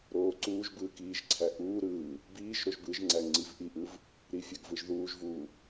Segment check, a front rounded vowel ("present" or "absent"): absent